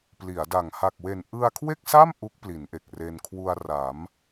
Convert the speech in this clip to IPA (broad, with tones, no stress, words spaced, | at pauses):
pli˩˦a̯da˨˩ŋ ha˨˩k̚we˨˩n ʔɯ˧a̯kʰwe˥˩k̚sa˥˩m ʔu˦˥k̚ pli˩˦nʔe˨˩k̚re˧n kʰwu˧a̯ra˩˦m